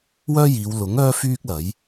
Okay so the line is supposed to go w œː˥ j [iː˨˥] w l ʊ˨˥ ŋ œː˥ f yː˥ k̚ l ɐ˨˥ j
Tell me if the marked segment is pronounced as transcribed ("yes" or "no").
no